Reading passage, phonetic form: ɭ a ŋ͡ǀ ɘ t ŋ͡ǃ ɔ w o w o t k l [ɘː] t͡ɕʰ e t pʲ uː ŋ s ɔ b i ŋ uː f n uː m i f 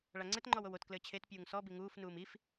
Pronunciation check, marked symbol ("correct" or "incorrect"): correct